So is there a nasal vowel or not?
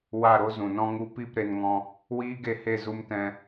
yes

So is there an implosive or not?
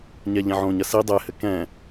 no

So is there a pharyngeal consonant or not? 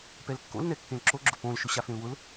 no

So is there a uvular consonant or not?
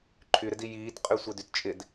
yes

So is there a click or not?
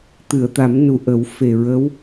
no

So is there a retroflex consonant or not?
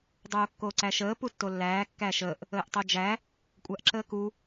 no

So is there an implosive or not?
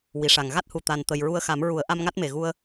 no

